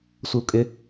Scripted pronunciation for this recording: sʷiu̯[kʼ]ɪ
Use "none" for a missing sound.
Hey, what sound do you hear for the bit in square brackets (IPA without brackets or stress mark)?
kʼ